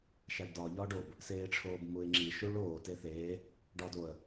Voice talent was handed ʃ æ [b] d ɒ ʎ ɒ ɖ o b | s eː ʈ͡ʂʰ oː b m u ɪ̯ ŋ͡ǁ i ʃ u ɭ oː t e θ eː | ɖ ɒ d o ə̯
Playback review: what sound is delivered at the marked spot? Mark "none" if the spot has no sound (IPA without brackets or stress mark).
ɖ